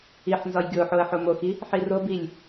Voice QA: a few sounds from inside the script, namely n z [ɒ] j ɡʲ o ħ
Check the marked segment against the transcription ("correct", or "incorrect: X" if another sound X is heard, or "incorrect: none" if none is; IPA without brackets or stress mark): correct